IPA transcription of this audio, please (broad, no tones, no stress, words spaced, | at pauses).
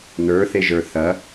nə˞θeʒə˞ θɐ